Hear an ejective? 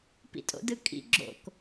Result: yes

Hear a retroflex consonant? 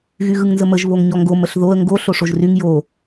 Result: yes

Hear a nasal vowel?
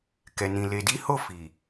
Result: yes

